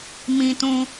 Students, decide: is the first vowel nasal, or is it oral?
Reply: nasal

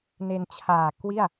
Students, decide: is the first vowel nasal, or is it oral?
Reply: oral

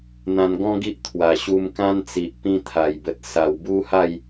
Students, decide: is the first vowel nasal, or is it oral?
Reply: nasal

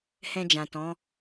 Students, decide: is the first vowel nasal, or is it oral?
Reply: nasal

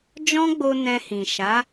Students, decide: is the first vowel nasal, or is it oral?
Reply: nasal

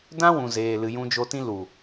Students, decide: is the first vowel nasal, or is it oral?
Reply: nasal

